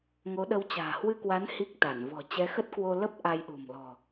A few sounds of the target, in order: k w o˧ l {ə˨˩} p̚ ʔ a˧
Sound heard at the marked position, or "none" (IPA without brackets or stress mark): ə˦˥